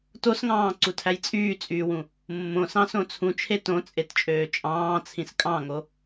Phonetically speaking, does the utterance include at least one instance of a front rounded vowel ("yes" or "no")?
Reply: yes